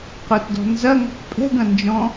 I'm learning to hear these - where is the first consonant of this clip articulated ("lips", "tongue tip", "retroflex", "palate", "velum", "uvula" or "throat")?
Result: uvula